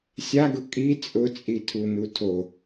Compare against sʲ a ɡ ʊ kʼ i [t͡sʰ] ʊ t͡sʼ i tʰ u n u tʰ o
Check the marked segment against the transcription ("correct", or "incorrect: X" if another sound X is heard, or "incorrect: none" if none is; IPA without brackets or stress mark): incorrect: t͡sʼ